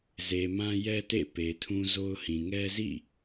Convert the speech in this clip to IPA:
ze˨mã˦ jɛ˦tḛ˦˨pe˨tʰũ˦ zo˦ʊ̯hĩ˨ ŋɛ˦zḭ˦˨

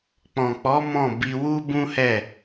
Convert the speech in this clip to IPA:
k͡pɔ̃˨k͡pɔ˨˦ mɔ̃˦˨bi˧ wu˦bũ˦hɛ˦˨

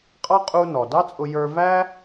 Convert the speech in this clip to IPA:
qʼɑ˥ qʼu˧nɔ˩ dɑ˥t͡sʼʊ˧ jə˞˧væ˥

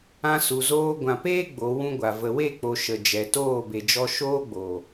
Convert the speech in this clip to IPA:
ã˧su˨zoː˧ ɡʷã˨peː˦ ɡ͡bo˨˦wũ˦ɡʷa˨ və˨we˦˨k͡po˨ ʃə˨d͡ʒɛ˨ toː˦˨be˨d͡ʒɔ˧ ʃoː˦ɡ͡bo˨

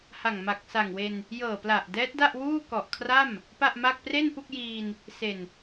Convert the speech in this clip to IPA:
ha˨˩ŋma˨˩k̚sa˨˩ŋwe˧n | jɤː˨˩pla˨˩ʔ dɛː˦˥t̚da˥˩ʔwuː˥˩ kɔ˨˩ʔkʰra˥˩m | pa˥˩ʔma˥˩k̚ pre˥˩npu˥˩k̚jiː˧n | se˨˩n

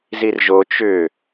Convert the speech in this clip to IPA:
zirʒo t͡ʃʏ

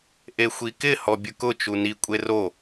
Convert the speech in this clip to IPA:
ʔexʷikɪ hɔbʲʊkʊ t͡ʃuni kʷʼero

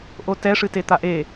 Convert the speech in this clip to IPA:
ʔotɛ ʂɨtet̪aʔe

